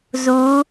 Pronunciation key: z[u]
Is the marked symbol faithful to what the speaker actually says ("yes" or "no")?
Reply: yes